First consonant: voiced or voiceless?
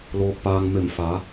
voiced